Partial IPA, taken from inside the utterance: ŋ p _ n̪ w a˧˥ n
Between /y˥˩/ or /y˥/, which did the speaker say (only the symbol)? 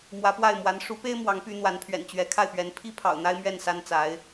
y˥